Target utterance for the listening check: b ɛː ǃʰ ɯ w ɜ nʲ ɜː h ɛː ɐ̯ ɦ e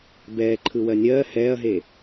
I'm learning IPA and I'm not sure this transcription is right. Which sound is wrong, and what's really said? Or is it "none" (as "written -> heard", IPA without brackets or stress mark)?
none